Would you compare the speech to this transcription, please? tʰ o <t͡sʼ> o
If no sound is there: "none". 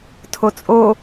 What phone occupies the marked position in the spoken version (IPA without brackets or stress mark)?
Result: t͡sʼ